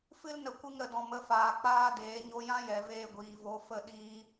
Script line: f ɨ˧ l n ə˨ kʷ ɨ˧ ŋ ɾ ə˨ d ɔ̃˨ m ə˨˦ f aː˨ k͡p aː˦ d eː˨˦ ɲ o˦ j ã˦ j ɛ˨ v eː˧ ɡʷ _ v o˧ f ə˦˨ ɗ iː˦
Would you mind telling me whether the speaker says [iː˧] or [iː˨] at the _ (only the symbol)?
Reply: iː˨